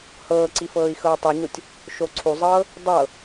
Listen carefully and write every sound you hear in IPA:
h ɤː ǀ i f ɤː i̯ x ɤː tˤ i ɲ o tʲ | ʃ o ǀʰ u zˤ ɤː | dˤ ɤ

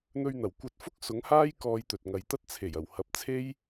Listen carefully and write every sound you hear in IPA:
n̪ ɵ˧ ɥ n̪ ɐ˨˩ w kʷ ɐ˧ t̚ f ʊ˥ k̚ s ʊ˨˥ ŋ h aː˥ j k ɔː˧ j t̪ ɵ˨ t̚ ŋ ɐ˨˧ j t̪ ɐ˥ t̚ t͡sʰ e˨˩ j ɐ˨˩ w h ɐ˨˥ p̚ t͡sʰ e˥ j

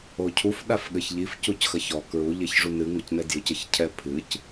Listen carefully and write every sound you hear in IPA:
o cʰ u f ɗ a f ɠ ɘ ç ʎ i f c u c x ɐ ç ɔ k ɹ u ʎ e ç ʐ u n ɨ ŋ o c n ɛ d j ɨ c ɘ ç cʰ ɛ pʰ ɨ c

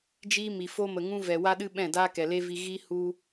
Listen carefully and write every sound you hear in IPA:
d͡ʒ iː˦ m i˨ f o˧ m ə˨ ŋ ũ˧ v ɛ˨ w a˦ ɗ ɨ˦ ɓ ɛ̃˦˨ d aː˦ k ɛ˨ l e˦ v i˧ ɣ i˦ h u˧

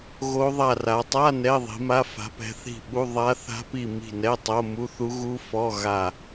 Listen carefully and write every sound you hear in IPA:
ɣ o˦˥ ðˤ a˦˨ r a˨˦ tˤ a˧˥˧ n ɛ˧˥˧ ðˤ i̤˨˦ m a˧˥˧ f a̤˨˦ p ɛ̤˨˦ θ i̤˦˨ ɓ u˧˥˧ ðˤ a˦˥ θ a̤˦˥ p i˦˨ m i̤˦˨ n ɛ˧˥˧ tˤ o˧˥˧ m u˧˥˧ θ u˦˥ ɣ u˦˥ f ɔ˧˥˧ ɣ a˦˨

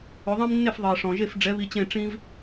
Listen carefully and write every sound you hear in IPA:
ɵ˩˥ ðˤ ĩ˥ m nː e˥˩ f ðˤ i˩ ɐ̯ ʂ ɔ̃˩ ʒ e˥˩ f ɖ͡ʐ ɛ˩˥ β i˧ t͡ɕ ẽ˥˩ ʈ͡ʂ ĩ˥ v

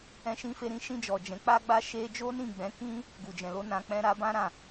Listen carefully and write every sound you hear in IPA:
ɛ̃˧ ʃ ĩ˧ f e˧ ɾ ĩ˧ ʃ ĩ˧ d͡ʒ ɔ˨ d͡ʒ ɛ̃˨˦ k͡p a˦ ɡ͡b a˦ ʃ e˦ d͡ʒ o˦ n ĩ˦˨ ɡ͡b ɛ̃˨˦ k ĩ˦ | ɡ u˨ d͡ʒ ɛ̃˨ l o˨˦ n ã˧ k͡p ɛ̃˦ ɾ a˧ b ã˦ ɾ ã˦˨

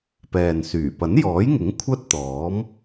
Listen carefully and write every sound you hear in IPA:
p ɛː˨ n s yː˨˩ p ɐ˨˥ n j ɔː˨˥ j ŋ ɪ˨˥ ŋ kʷʰ ɐ˥ t̚ t̪ ɔː˨˥ m

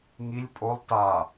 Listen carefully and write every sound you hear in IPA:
ŋ i lʲ pʼ o lˠ t a

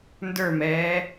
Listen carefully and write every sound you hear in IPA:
n d ə˞ m ɛː

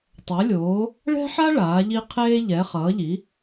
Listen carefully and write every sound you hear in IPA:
tˤ ɛ˨˥ lʲ oː˨˥ | ɭ ɛ̤˥ ħ a˥ ɭ aː˨˥ ʎ i˥ qʰ eː˥ ʎ ɛ˨˥ χ ʌː˨˥ ʎ i˨˥

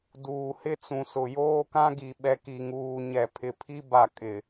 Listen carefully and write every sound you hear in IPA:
d uː˨ h ɪ˦ t͡s ũ˨ s ʊ˨ j oː˦ k ã˦ ɡ i˨ ɓ ɛ˨ k i˨ ŋ uː˨ ɲ ɛ˨ pʰ ɪ˨ pʰ i˦ b a˨ kʼ ɪ˨

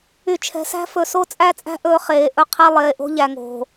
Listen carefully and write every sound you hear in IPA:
y˨ t͡ʃʰ ɛ̤˨ s æ̤˦ f ɵ˨ s o˦ t͡sʼ æ˦ t͡sʼ æ̤˦ ʔ ɵː˦ χ eː˨ ʔ ɵ˦ qʰ e˦ lˠ eː˨ ʔ o̤˦ ʎ æ˨ ŋ o̤˨

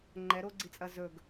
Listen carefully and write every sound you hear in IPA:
ŋ͡ǃ ɛ ɾ o ɡ͡ǀ i t͡sʼ ɐ z ɵ ɡ

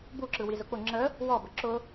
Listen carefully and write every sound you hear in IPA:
b u ǁ ɯ w i z ʊ k͡p ʊ ŋ͡ǁ ə | w ɔ b ə ǁ ʊ

